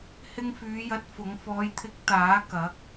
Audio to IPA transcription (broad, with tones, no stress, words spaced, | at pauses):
hɪ˧ŋfyː˨˧jɐ˨˥t̚ fʊ˨˥ŋ fɔː˨˧jt̪ʰɪ˨˥k̚ t̪aː˨˥ kɐ˨˥k̚